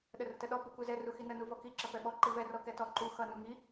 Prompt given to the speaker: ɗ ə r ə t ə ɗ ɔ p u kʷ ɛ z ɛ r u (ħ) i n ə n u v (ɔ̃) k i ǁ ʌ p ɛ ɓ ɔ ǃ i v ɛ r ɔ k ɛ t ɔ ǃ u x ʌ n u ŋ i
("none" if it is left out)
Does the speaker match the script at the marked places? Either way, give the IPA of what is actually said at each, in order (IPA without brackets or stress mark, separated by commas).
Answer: x, ɔ